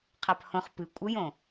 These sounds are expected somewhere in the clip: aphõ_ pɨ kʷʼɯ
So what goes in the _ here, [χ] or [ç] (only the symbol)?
χ